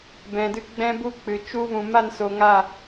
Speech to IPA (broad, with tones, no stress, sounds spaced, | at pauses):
b ɛ̃˨ d ɨ˧ ɡ͡b ɛ̃˦ b u˦ k͡p ɨ˨ t͡ʃ u˧ v ũ˨ m a˦˨ n s o˨ ŋ a˦˨